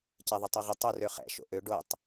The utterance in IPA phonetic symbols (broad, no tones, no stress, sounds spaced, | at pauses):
c ɛ ðˤ o tˤ o ʁ ʏ tˤ ʏ r ø χ ɛ̰ ʃ o̰ ʔ ø ɖ o tˤ